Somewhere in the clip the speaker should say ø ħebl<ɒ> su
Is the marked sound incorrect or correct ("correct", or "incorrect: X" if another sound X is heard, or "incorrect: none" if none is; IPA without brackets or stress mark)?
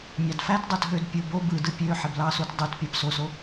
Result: incorrect: ɑ